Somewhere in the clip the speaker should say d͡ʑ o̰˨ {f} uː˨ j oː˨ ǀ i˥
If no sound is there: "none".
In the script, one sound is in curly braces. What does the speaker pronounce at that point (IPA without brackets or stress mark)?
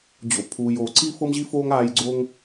pʰ